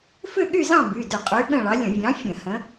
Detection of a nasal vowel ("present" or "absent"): present